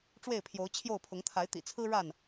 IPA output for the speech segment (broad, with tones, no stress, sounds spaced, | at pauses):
ʈ͡ʂ w e˥˨ ɪ̯ pʰ j o˨˦ ʊ̯ t͡ɕʰ j o˥˨ ʊ̯ pʰ ʊ˨˦ ŋ t̪ʰ a˨˦ ɪ̯ t̪ ḭ˨˩ t͡sʰ ɹ̩˦ ɻ a˥˨ n